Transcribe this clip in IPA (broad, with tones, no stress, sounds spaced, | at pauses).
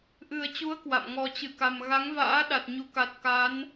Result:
ʔ ɨ˨˩ ə̯ t͡ɕ u˨˦ ə̯ k w a̰˧˨ m ŋ ɔ˧ t͡ɕ ɨ˧˩ k a˨˩ m ɣ a˨˦ ŋ v a̰ː˧˥ ɗ a˨˩ t̚ ɲ u˨˦ k a˨˩ t̚ k a˨˦ n